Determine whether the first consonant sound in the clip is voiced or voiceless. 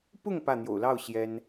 voiceless